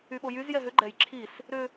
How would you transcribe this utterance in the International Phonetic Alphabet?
y ɓ o j y z j ɛ ɦ ʏ ɡ͡ǃ ɛ j ǁʰ i s | ɾ ʏ

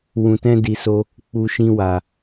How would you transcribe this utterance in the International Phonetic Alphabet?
w ũ˨ t ɛ̃˧ d i˨ s o˧ | k͡p u˨ ʃ ĩ˧ w a˨

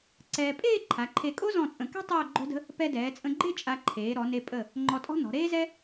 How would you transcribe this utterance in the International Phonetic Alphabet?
ǀ ɛː˧ pʼ eː˥˧ ǃʰ a˩˧ ǃʰ e˧˩ kʼ o˥ z ɔ̃˧˩ t͡sʼ ə̃˩˧ k ɛ̤˥ tˤ oː˥˧ ɡ͡ǃ o̤˥ d ə̤˥ | p ɛ˧ d ɛː˩˧ t͡sʼ ə̃˧ ɡ͡ǃ e˥˧ t͡ʃʼ a˧ ǃʰ eː˩˧ ɾ ɔ˩˧ n e˧ pʼ ə˧˩ | ŋ͡ǃ ɔ˧ tʼ ɔ̤˥ n ɔ̤˩˧ ɾ eː˥ z ɛ˥

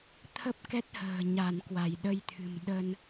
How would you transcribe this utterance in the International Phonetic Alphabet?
t̪ʰ ə˦˥ p̚ k ɛ˦˥ t̚ h ə̤ː˨˩ ɲ a˧˩ n k w a˧˩ j ɗ ə˧ j t̪ʰ ɨ̤˨˩ m ɗ ə˧ n

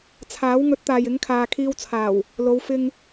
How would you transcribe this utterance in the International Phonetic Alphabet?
t͡sʰ aː˨˥ w ŋ ɵ˨˥ t̚ t̪ aː˨ j ɪ˨˥ ŋ kʰ aː˨ kʰ iː˧ w t͡sʰ aː˨˩ w | l o˨˧ w f ɪ˧ ŋ

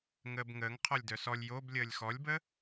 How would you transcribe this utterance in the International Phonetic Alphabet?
ŋ əː b ŋ əː ŋ qʰ ɔ lʲ d œ s ɔ lʲ j o b lʲ əː lʲ x ɔ lʲ b ə

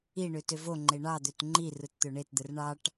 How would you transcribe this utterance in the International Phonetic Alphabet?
i ɳ ø t ø v o ŋ͡ǃ e ɳ ɑ d̪ ø t ŋ͡ǃ i r ɯ t t̪ ø ɳ e t d̪ ɯ r ɳ ɑ ʈ

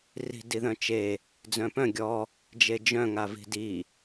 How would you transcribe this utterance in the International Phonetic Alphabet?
r i̤ d i ð œ̃ t͡ʃ e | d͡z œ̃ p œ̃ ɡʲ ɔ | d͡ʒ e d͡ʒ œ̃ ŋ a v i̤ d i

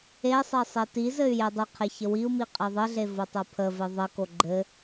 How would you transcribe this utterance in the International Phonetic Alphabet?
e sˤ e sˤ e t i z ɘ y̯ j e dˤ ɘ qʰ e ç ə w i u̯ m i qʼ e ðˤ ɘ ɮ e v o tˤ o pʰ ə v e ðˤ ɘ k o ɡ͡ǃ ɘ

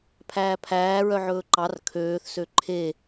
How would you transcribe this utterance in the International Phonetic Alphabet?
pʰ æː pʰ æː ɹ œ ʕ ɵː ǃ ɑ r kʰ øː θ s ø ǃʰ e

